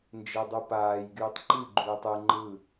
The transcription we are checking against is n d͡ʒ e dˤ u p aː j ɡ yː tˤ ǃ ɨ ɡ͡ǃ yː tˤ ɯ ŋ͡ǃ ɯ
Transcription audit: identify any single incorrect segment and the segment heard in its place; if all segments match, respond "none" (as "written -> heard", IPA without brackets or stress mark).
none